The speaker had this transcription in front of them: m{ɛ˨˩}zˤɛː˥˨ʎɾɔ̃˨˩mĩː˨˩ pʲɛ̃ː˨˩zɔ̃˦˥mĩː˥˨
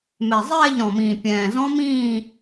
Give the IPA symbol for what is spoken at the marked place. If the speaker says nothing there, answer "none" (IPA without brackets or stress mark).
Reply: ɛ˨˩